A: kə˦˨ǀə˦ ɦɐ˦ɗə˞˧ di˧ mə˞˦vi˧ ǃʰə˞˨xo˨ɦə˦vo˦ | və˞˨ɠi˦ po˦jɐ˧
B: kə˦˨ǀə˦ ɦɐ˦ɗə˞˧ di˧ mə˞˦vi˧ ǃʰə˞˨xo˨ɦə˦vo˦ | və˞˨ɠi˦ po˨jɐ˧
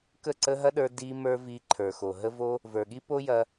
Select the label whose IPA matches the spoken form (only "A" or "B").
A